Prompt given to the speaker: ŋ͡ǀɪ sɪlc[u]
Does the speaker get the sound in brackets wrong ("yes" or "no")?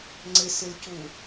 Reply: no